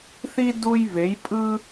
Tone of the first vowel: high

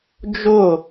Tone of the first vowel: falling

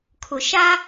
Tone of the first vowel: low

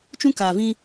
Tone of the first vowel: high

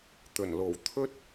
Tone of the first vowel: low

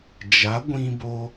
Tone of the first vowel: rising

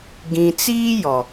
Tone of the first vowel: low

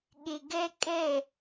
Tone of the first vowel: low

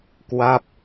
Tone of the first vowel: falling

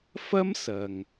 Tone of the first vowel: high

